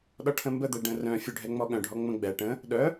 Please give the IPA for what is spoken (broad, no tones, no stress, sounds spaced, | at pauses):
ɗ ɔ ʈʰ ə̃ m b ə d̪ ɛ ɖ ə̃ r œ̃ fʲ u ɖʱ ɛ ŋ͡m ɔ ɠ œ̃ ɖʱ ɔ ŋ͡m ə̃ ɡ͡b ɛ ʈ ə̃ | ɗ œ